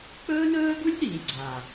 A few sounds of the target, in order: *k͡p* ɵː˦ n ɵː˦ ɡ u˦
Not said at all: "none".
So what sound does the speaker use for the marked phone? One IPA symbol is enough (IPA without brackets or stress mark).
k͡p